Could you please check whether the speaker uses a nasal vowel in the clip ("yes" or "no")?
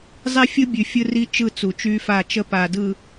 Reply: no